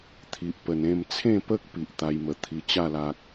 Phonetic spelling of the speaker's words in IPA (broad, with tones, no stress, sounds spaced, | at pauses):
t̪ʰ i˨ ʔ p ə˨˩ n ẽ˥˧ m t͡sʰ ẽ˥˧ p ə˦ k̚ p i˨ ʔ t̪ a˧ j m ə˨˩ t̪ʰ i˧ t͡ɕ a˥˧ l a˨ k̚